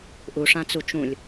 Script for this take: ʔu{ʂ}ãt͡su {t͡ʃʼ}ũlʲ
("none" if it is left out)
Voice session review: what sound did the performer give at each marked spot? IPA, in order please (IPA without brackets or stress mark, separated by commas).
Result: ʂ, t͡ʃ